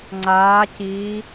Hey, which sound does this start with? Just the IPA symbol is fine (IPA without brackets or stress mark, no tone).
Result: ŋ͡ǀ